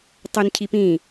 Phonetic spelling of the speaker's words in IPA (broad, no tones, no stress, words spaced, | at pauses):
tˤɵn cʰipĩ